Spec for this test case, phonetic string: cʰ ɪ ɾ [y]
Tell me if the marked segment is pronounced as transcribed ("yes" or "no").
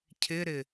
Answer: no